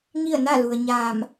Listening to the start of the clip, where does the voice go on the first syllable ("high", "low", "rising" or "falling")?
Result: falling